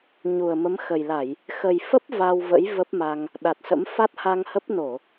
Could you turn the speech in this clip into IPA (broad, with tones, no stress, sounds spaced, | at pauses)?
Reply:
ɲ u˨˩ ə̯ m ə˨˦ m x ə˨˩ j l a˧˩˨ j | x ə˨˩ j f ə˦˥ p̚ v a˧ w v ə̰˧˥ j v ə˦˥ p̚ m a˧ ŋ | ɗ a˨˩ t̚ s ə̰˧˥ m f a˦˥ t̚ h a˧ ŋ h ə˦˥ p̚ n o˧˩˨